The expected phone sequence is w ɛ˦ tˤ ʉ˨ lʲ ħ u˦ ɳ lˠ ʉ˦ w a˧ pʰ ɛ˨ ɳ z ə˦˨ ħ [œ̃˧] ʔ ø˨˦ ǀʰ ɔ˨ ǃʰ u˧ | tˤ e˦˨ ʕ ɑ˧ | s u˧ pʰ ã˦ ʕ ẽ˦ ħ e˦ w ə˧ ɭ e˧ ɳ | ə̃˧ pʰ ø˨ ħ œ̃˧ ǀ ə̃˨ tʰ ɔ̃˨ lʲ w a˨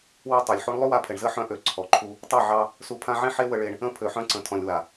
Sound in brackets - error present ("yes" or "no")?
yes